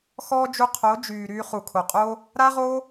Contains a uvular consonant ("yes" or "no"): yes